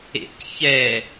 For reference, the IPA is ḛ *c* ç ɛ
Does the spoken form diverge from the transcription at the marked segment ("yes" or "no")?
no